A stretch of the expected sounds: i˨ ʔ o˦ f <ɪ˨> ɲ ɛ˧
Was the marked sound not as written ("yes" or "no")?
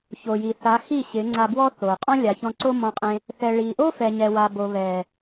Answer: yes